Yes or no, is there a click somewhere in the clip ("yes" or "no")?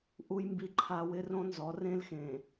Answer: yes